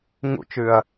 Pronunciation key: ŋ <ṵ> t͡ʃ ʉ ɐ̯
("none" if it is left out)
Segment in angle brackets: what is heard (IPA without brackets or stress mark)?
ṵ